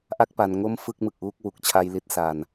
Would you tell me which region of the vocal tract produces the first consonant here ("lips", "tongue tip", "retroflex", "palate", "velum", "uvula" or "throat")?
throat